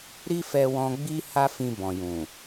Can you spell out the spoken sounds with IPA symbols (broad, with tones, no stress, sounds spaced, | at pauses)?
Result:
ɾ i˦ f ɛ˧ w ɔ̃˧ ɡ͡b i˦ h a˦ f ĩ˧ b ɔ̃˨ j ũ˨